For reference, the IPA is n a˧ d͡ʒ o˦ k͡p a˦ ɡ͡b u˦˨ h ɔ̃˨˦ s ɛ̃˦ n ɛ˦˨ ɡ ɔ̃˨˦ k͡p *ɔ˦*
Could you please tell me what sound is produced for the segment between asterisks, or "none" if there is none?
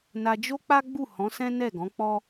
ɔ˦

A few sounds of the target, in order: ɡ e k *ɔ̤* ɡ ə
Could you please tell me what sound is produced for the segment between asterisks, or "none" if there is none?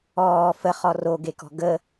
ɔ̤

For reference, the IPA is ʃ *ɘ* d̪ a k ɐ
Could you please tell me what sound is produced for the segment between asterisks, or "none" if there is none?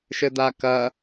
ɘ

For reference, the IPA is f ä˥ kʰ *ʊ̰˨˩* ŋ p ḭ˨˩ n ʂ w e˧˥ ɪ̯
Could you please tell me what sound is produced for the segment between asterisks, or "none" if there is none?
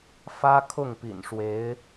ʊ˥˩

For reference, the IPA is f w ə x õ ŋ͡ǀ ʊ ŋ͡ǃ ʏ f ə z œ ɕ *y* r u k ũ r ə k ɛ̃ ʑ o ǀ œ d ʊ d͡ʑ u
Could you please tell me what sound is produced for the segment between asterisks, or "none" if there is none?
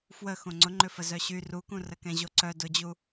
y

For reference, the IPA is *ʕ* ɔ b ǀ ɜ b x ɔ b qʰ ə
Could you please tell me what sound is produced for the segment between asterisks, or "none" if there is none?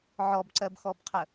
ʕ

